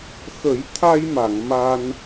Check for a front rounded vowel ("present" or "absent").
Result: absent